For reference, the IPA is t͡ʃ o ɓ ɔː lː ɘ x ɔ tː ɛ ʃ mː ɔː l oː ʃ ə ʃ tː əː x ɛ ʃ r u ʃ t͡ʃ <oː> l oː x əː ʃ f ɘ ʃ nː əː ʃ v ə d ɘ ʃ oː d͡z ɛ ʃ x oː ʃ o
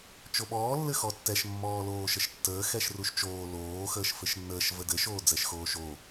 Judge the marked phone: correct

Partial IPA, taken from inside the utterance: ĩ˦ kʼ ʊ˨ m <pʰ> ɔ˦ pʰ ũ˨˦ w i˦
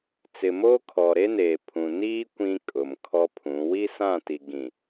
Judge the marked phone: incorrect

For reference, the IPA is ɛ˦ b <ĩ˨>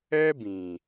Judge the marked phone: correct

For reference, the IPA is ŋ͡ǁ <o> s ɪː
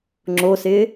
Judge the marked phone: correct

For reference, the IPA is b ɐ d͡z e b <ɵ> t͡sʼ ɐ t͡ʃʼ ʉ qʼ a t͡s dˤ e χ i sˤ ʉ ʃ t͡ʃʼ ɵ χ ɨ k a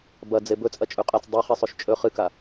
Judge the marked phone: correct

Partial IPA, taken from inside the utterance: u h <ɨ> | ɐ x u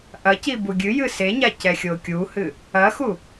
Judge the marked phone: correct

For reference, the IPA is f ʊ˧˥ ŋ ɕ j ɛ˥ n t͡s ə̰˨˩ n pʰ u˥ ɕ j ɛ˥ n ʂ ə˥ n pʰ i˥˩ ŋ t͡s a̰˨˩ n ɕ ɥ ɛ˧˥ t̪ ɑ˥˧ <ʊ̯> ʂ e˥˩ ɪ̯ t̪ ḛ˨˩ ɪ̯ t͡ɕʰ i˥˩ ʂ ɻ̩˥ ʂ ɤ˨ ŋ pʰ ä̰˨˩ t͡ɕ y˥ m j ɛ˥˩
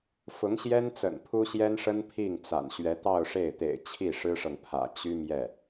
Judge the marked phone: correct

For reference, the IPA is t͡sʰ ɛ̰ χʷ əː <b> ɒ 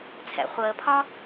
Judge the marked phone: incorrect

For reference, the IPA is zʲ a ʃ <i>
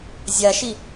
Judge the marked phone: correct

